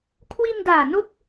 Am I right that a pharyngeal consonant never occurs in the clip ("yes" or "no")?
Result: yes